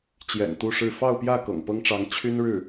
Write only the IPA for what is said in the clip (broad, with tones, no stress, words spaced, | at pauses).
t͡ɕjɛ̰˨˩nt̪u˥˧ʂɻ̩˥˧ fɑ˥˧ʊ̯pjä˥˩ kɤ̰˨˩ŋpɤ˥ŋʈ͡ʂɑ˧˥ŋ t͡ɕʰy˥nɻɻ̩˥˩